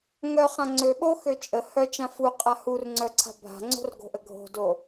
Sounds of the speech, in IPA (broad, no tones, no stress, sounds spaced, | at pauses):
ŋ œ χ ã ŋ͡ǀ ø ɓ o x ø t͡ʃʼ ə h œ t͡ʃ ã f u qʼ a h u r ŋ͡ǀ œ ǀʰ a̤ bʱ a̤ ŋ͡ǀ o̤ r ɡ o̤ ʔ ə ɡʱ o̤ d o